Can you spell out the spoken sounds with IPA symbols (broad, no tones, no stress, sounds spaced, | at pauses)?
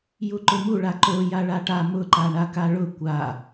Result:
j u ǃ ʊ m u ɭ a ǃ o j a ɭ a ʈ a m ʊ ǃ a ɳ a k a ɭ ʊ kʷ a